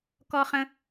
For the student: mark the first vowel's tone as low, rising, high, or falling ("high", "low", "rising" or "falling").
high